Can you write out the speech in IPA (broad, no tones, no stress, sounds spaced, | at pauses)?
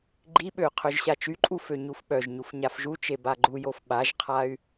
ɡ͡ǃ i ɓ ø y̯ qʰ ø ʒ ɕ a t͡ʃ y ǃʼ u f ø ɲ u f ɓ œ ʒ ɲ u f ɲ a f ʒ u t͡ʃ e b a ɡ͡ǃ u j o f ɓ a ʒ qʰ a y̯